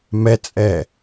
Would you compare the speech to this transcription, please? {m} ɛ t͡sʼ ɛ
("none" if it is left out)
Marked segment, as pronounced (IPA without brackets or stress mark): m